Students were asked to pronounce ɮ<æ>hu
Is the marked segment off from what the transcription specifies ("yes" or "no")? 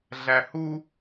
no